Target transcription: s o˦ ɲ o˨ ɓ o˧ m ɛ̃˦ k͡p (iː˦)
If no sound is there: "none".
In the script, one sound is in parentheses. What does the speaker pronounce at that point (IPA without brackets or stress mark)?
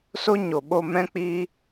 iː˦